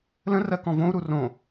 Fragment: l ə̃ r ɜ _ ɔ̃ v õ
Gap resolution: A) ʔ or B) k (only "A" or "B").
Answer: B